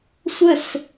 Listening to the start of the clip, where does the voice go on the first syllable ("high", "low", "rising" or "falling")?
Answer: falling